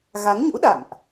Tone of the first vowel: rising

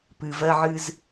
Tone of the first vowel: low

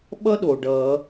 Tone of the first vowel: high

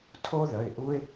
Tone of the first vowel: high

